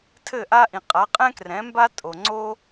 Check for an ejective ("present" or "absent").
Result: present